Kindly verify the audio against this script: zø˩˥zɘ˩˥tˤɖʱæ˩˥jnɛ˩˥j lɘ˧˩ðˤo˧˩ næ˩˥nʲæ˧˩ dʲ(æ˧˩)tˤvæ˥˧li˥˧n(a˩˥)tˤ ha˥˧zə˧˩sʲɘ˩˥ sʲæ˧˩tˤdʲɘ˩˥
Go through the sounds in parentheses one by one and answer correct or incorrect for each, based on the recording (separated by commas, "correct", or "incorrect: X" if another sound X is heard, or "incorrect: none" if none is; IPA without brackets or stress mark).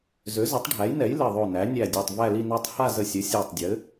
incorrect: a˧˩, incorrect: a˥˧